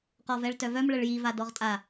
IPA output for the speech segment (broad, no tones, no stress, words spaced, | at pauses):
qɔvɛɭtœvœm ɭəɭji vadɔʁtʼa